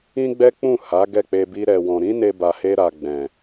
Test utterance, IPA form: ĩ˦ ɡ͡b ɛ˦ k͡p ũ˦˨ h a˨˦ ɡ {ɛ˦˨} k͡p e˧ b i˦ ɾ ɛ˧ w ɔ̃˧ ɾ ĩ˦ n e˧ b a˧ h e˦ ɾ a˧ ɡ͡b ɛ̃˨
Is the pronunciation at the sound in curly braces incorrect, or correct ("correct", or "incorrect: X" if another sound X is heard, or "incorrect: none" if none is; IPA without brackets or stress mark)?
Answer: correct